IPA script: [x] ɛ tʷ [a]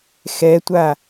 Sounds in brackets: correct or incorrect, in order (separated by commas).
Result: correct, correct